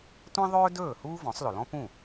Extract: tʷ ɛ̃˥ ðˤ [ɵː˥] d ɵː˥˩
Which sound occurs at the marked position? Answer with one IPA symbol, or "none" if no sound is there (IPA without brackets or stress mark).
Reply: ɵː˥